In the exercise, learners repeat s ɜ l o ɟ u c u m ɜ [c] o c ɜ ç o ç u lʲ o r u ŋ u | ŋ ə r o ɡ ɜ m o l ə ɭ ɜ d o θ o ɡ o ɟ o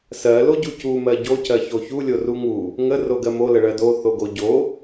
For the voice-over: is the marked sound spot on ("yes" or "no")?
no